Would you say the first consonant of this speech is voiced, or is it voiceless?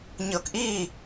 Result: voiced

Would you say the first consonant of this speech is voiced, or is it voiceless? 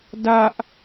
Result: voiced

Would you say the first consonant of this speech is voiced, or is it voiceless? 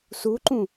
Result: voiceless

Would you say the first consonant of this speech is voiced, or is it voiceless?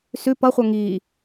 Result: voiceless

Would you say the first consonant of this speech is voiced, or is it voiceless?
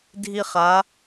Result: voiced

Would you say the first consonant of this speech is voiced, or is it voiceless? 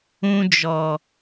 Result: voiced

